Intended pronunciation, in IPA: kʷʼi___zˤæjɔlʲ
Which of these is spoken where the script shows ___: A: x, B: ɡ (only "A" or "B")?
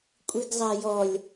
B